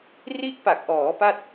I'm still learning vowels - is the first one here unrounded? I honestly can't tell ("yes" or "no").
yes